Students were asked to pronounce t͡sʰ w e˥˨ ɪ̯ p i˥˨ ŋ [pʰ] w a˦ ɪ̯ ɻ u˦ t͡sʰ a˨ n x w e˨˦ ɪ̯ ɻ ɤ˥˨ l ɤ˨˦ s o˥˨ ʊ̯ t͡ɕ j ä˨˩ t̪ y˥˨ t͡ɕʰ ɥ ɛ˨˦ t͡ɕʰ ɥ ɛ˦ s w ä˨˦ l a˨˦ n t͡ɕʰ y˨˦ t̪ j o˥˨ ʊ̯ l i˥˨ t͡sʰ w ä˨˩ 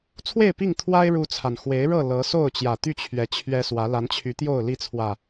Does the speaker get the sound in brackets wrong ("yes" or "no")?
yes